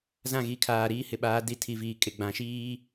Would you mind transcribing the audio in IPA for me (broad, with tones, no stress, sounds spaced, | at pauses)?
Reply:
z ã˦˨ ɣ i˨ kʰ aː˨ ɾ iː˦ h ɪ˨ ɓ aː˨˦ d i˨ tʰ i˨ v iː˨ kʼ ɪ˨ ɡ͡b ã˨˦ ʃ iː˦